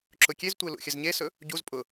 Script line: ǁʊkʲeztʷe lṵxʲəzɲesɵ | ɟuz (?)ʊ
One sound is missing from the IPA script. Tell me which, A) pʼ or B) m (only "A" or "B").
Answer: A